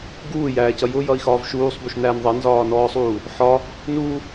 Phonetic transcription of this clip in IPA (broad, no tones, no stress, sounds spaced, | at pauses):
ɡ uː j æː c ʌ j ʊ j ʌ i̯ x ɒː v ʃ uː sˤ b u ʃ n æː n ðˤ ʌ n z ɒː n ɔː sˤ uː | ħ ɒ | n u